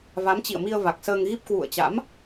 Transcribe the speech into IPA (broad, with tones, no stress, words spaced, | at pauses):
va˨˦mt͡ɕḭ˧˨ə̯mi˧ə̯ va˨˩k̚səː˧ŋɣi˦˥p̚ kwṵ˧˨ə̯t͡ɕa̰˧˥m